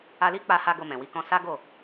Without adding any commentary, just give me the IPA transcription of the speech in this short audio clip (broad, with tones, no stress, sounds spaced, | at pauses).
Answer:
a˧ l i˦ k͡p a˧ h a˧ ɡ o˧ m ɛ̃˨ w i˧ k ɔ̃˦ s a˦ ɡ o˦˨